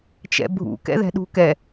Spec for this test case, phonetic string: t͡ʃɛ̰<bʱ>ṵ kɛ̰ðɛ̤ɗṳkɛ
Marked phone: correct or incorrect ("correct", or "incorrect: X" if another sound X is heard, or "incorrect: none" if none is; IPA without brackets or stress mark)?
correct